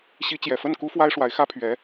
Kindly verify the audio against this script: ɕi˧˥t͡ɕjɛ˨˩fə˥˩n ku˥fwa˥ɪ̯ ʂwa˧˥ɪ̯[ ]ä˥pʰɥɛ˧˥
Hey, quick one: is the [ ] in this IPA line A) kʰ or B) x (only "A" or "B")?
B